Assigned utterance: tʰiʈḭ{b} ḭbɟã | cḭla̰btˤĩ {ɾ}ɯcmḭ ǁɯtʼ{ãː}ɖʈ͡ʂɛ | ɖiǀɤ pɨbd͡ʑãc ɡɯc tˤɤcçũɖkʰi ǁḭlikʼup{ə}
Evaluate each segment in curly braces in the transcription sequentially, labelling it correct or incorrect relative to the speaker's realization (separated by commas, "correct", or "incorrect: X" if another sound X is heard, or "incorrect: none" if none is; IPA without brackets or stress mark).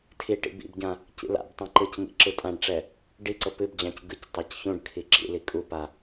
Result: correct, incorrect: ǃ, incorrect: ã, incorrect: a